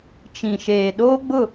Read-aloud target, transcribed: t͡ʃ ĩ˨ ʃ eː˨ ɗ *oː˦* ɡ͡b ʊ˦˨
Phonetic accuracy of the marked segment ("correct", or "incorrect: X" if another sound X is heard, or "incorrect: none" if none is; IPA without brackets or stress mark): correct